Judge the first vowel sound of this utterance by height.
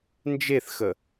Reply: mid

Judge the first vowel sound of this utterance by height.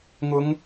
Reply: high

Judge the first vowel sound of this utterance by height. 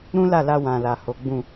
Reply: high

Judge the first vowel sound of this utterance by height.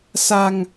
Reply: low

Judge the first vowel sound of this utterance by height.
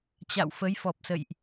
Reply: low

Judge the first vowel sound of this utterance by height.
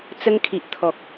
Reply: mid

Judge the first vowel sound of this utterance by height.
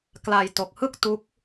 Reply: low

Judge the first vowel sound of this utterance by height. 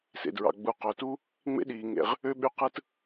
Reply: mid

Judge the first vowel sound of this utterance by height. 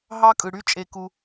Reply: low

